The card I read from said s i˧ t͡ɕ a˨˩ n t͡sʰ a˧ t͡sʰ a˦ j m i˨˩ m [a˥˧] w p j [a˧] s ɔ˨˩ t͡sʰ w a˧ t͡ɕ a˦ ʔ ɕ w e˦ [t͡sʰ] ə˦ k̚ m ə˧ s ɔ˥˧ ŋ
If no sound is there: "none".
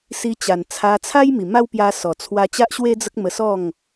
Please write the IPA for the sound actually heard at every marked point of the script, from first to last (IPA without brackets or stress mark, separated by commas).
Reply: a˦, a˧, d͡z